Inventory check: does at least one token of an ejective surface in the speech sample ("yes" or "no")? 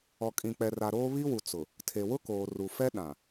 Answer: yes